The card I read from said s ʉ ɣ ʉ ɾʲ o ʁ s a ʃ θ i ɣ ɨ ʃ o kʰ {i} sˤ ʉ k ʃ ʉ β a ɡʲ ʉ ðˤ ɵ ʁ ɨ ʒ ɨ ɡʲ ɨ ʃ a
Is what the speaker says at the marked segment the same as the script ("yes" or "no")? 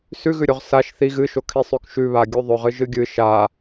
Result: yes